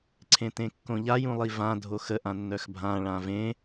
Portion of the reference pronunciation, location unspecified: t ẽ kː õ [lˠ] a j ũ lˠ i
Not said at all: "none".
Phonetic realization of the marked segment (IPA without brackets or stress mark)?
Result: ʎ